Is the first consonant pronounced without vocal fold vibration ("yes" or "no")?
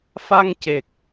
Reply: yes